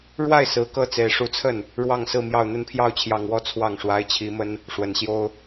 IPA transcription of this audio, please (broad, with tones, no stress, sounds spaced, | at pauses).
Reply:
ɻ w a˥˩ ɪ̯ s ɹ̩˧˥ k ɤ˥˩ t͡s e˨˩ ɪ̯ ʂ u˧˥ t͡sʰ ə˥˩ n | ɻ w ɑ˥˧ ŋ s ɹ̩˥˧ m j ɑ˥˧ ʊ̯ n̪ ə˥˧ n pʰ j ɑ˥˩ ʊ̯ t͡ɕʰ j ɑ˨˩ ŋ w ɔ˥ t͡sʰ w ɑ˥˩ ŋ ʂ w a˧˥ ɪ̯ t͡ɕʰ i˧˥ m ə˥ n | ʂ w ə˨˩ n ɕ j o˥ ʊ̯